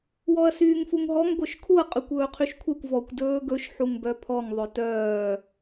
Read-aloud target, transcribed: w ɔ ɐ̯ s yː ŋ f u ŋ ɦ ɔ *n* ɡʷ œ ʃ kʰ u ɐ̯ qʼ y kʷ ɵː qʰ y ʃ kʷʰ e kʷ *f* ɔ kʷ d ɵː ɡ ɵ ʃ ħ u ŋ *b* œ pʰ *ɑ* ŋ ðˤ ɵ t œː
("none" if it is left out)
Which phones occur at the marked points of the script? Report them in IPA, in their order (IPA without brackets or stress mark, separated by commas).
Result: ŋ, v, b, ɔ